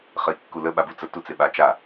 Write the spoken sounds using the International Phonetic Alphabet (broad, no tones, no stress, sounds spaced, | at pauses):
χ ə i̯ kː u l ə ɓ a b u t͡s ə t u t͡s e ɓ a t͡ʃ a